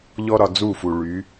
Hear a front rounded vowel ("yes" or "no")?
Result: yes